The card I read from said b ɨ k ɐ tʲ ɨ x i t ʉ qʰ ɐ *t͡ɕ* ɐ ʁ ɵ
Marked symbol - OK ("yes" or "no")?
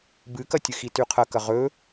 no